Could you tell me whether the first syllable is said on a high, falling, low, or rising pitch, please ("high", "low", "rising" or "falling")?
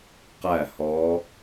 falling